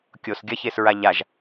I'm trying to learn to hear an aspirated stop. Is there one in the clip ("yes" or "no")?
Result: no